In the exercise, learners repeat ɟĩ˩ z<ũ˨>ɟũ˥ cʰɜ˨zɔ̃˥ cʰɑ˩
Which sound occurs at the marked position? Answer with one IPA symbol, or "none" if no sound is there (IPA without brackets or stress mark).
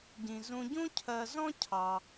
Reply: ũ˨